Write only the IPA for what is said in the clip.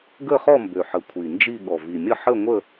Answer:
ɡ ə˥˧ χ ɔ˥˧ m b ø˨˩ ħ ə˨˩ kʷʰ i˨˩ n d͡ʒ i˥˧ ɠ ɔ˨˩ v i˨˩ mʲ ə˥˧ ħ ə˥˧ ŋʷ ə˥˧

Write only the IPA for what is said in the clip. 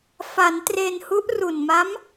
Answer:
f a˩˦ n t r e˧ n h u˦˥ ʔ r u˨˩ n m a˦˥ m

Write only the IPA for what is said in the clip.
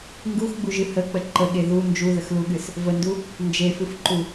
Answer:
ŋ ɡ u x ɡ͡b u ʒ ɨ h ə k͡p ə ǃ ə ɠ e ð u n d͡ʒ u ð ə x l u ɠ ɨ s | v ə n d u | n d͡ʒ e f ɨ f ǃ u

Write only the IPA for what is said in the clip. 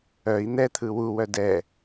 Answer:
œ i̯ n̪ ɛ t̪ʰ ɯ w u w œ d ɛ

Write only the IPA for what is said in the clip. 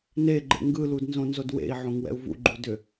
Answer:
n e ɡ͡ǃ ḛ ŋ ɡ ɯ l u d n z õ n z o d w ḛ i̯ ʕ õ ŋ w ɛ̰ u̯ v ṵ ɡ͡ǃ u d ʏ

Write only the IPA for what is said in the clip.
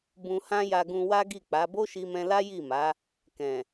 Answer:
b ũ˧ h ã˦ j a˧ ɡ ũ˧ w a˦ ɡ i˦˨ k͡p a˨˦ b o˦ ʃ i˧ m ɛ̃˧ l a˦ j i˦˨ m a˨˦ | k ɛ̃˨

